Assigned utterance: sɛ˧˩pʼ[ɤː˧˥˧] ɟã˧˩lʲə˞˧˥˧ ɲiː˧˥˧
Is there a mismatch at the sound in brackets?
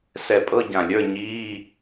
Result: yes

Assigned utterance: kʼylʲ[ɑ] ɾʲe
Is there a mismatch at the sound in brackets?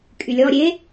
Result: yes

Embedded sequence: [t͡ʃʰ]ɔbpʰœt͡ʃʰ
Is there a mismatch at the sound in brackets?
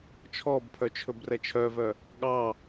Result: no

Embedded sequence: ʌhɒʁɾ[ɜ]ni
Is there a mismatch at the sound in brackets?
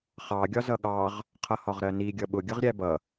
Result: no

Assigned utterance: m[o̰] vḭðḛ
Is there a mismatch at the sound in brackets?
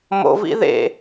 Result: no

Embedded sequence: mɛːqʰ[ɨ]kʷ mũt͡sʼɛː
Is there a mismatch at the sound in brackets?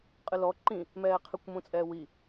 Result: no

